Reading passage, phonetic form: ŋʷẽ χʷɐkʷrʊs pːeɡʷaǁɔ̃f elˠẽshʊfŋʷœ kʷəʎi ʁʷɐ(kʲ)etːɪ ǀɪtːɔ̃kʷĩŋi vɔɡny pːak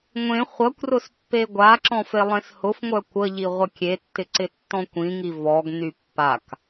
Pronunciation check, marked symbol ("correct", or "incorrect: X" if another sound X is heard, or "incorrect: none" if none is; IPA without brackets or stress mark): correct